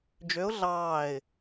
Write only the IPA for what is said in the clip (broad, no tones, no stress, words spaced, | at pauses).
d͡ʒøʊ̯ ɮɑːɪ̯